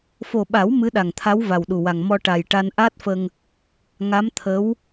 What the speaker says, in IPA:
f o˨˩ ɓ a˨˩˦ w m ɨ˧˥ ɗ a˨˩ ŋ t̪ʰ a˧˥ w v a˨˩ w ɗ u˨˩ w a˨˩ ŋ m ɔ˧ ʈ a˨˩ j ʈ a˧ n ʔ aː˦˥ t̚ f ə˧ ŋ | ŋ a˧˥ m t̪ʰ ə˧˥ w

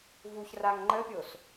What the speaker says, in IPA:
v u ç r a ŋ ŋ͡ǃ ə pʲ o s

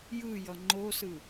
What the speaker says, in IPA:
j ɯ j ʌ ŋ͡ǃ o s ɯ

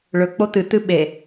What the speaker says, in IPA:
ɭ ɵ k͡p o t̪ ɨ t̪ ɨ ɓ e

